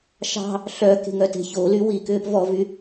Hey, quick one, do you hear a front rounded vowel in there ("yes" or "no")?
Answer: yes